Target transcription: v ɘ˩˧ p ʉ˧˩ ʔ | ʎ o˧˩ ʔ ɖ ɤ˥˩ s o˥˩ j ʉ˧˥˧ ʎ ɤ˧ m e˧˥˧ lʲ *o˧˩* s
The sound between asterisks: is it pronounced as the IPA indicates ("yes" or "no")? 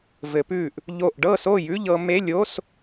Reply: no